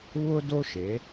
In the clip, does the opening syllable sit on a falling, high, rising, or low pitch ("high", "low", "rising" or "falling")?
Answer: high